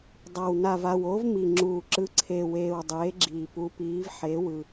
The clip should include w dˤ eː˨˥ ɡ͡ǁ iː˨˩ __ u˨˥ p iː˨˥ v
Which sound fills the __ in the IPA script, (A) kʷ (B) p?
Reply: B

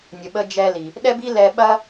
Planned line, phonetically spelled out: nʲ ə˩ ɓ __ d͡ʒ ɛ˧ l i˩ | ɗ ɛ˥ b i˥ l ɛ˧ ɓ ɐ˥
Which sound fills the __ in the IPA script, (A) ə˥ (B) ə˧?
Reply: B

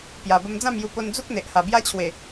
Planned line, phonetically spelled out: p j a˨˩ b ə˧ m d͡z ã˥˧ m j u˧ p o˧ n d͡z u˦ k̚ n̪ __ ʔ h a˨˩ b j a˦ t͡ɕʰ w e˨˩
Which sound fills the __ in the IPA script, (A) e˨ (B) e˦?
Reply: A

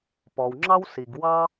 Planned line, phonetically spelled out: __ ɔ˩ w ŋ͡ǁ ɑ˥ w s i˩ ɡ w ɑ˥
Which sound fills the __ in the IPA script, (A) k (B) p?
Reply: B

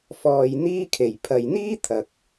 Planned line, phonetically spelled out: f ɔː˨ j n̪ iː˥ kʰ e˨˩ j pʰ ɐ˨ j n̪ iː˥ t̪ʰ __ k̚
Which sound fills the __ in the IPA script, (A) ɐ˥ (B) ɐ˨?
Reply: B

